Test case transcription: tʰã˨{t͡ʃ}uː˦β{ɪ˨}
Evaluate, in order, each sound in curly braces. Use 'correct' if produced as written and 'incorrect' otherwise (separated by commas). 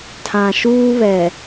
incorrect, incorrect